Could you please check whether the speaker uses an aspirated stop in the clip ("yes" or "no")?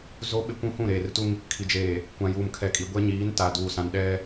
yes